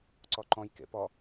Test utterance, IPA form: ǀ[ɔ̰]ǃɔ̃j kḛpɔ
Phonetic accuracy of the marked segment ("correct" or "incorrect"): incorrect